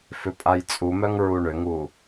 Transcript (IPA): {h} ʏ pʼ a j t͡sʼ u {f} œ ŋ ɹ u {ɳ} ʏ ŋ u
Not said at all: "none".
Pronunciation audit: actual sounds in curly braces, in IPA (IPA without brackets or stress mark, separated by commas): f, m, ɳ